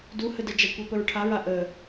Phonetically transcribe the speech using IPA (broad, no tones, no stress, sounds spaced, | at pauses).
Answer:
d u h ə d ə d͡ʒ ʌ kʷ ɛ p ə ɹ ʈʰ a ɹ a ʔ ə